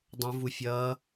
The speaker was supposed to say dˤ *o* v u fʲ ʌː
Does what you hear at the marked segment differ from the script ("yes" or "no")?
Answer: yes